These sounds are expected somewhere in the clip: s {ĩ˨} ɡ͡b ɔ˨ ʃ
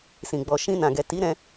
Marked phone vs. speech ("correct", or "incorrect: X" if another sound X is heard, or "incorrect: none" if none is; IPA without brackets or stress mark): correct